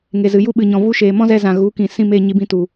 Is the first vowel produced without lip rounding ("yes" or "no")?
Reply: yes